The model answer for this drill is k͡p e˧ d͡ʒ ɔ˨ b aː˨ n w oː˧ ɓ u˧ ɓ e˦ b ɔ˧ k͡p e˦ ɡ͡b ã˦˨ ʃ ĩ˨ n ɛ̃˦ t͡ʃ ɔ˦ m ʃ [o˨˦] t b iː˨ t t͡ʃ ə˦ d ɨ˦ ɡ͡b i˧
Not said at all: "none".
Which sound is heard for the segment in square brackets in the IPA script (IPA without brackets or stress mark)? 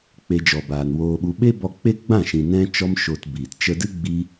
o˧